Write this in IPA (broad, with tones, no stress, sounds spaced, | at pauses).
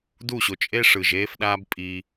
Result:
d u˦˨ ɕ o˨ t͡ʃʼ e˦ ʂ ɯ˨ ʒ eː˦ f ɗ aː˦ b pʼ i˧